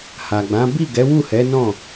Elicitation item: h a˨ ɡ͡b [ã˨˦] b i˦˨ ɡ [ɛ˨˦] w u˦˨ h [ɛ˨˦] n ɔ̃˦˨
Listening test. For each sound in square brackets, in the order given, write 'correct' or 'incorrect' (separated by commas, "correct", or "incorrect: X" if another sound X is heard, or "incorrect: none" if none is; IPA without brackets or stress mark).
correct, correct, correct